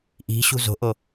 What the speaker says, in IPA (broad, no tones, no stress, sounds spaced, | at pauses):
ʔ i̤ ɕ ṳ z o̤ ʔ o